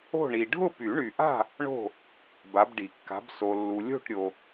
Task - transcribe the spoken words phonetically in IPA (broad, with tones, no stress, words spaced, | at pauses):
o̤˥˨ɳi˨ ɖʱʊ˥˨py˨˩˦ɳy˨ʔa̤˥˨ | ɳo̤˥˨ | ba˨˦bɖi˨˩˦kːa̤˨˦b so˨lːu˨ lʲo̤˥˨ʈɾʲo˨